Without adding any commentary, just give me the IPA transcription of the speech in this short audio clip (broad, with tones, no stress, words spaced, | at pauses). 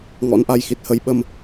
ŋɔ̰˧˥nʔa˧j xi˦˥t̚hə˨˦j ɓə˧m